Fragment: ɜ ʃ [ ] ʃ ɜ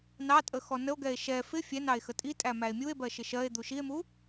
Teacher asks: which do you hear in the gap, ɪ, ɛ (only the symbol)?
ɪ